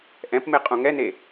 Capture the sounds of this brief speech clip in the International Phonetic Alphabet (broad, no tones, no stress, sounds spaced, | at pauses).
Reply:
ʔ ɛ̃ p m e qʼ ũ ŋ ɛ n e